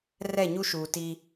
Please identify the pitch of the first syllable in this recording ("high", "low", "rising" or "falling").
falling